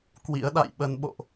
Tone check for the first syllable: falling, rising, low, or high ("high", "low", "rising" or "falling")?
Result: rising